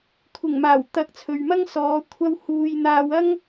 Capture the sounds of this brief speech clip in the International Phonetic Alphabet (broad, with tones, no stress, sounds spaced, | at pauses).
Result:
kʷʰ ɪ˨˩ ŋ m aː˨˩ w t̪ ɐ˨˥ k̚ t͡sʰ ɵ˨ ɥ m ɐ˥ ŋ s ɔː˨˧ kʷʰ ɐ˧ w h uː˨ j n̪ aː˧ w ɐ˥ ŋ